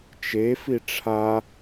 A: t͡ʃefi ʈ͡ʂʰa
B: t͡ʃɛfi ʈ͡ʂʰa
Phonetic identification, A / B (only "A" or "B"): A